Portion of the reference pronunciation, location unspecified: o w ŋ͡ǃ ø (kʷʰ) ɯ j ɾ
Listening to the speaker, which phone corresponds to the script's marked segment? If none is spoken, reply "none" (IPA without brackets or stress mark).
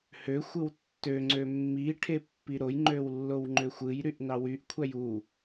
xʷ